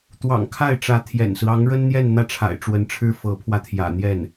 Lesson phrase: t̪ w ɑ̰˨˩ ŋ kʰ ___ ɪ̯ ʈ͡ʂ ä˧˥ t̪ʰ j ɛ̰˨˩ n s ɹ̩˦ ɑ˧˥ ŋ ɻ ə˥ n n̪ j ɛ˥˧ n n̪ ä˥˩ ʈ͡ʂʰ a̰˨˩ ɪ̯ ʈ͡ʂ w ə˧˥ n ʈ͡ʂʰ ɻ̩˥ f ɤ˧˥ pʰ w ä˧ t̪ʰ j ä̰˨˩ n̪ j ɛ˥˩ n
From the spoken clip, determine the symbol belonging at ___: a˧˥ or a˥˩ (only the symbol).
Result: a˥˩